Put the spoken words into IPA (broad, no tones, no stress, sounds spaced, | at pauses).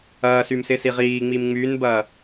ɐː s y m s ɪ s i ʁ iː ŋ͡m i m ŋ͡m yː n b ɐː